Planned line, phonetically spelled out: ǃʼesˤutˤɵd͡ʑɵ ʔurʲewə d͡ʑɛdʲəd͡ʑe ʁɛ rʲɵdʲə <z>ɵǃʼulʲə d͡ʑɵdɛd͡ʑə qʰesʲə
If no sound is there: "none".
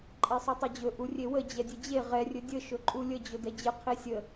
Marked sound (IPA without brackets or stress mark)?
ʃ